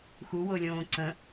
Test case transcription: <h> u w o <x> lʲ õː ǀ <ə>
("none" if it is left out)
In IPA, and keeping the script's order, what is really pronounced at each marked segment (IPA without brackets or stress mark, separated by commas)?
x, none, ə̃